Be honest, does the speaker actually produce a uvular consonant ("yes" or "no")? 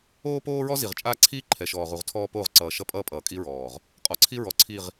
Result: yes